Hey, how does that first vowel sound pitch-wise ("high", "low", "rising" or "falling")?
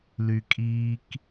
low